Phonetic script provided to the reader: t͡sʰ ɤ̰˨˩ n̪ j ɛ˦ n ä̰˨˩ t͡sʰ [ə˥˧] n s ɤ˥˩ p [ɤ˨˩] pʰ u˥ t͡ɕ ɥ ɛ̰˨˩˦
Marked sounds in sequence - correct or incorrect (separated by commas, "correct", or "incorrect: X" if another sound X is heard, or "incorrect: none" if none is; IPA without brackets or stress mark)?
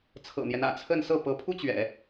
correct, incorrect: ɤ˧˥